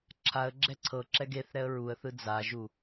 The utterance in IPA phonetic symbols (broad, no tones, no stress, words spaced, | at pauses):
ǁʰaə̯ ɡ͡ǁɛǀʰɤǁɛɡ eθ ɾɛə̯ɹuə̯θɯ d͡zaʒu